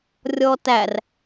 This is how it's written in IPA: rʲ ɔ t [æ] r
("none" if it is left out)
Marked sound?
æ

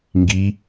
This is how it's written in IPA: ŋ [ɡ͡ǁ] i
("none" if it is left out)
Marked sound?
ɡ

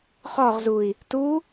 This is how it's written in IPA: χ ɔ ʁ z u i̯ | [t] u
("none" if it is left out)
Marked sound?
t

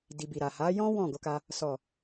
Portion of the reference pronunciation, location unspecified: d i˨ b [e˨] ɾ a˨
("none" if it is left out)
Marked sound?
i˨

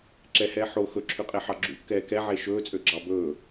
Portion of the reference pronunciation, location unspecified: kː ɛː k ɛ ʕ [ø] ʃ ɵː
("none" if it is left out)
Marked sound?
e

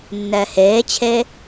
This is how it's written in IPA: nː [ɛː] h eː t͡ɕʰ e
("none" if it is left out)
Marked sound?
ɛː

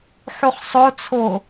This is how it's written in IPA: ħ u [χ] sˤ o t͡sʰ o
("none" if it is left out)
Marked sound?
χ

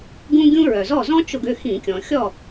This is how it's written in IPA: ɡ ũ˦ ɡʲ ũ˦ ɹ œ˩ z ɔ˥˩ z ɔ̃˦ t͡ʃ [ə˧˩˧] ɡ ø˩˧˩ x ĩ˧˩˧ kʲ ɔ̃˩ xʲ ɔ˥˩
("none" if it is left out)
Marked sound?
ʊ˧˩˧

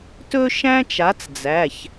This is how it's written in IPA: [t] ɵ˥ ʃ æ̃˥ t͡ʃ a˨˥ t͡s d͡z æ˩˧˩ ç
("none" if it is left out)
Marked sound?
t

